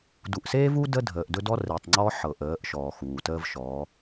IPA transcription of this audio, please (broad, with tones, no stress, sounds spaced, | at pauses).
d u˨ ʔ s eː˦ v u˦ d ə˦ dʱ əː˨ ʔ d ɵ˦ d ɔ˦ r e˨ tˤ ŋ͡ǀ ɔ˦ ħ ɤ˨ ʔ əː˨˦ ʔ ʃ ɔː˨ x uː˨ t əː˦ v ʃ ɔː˨˦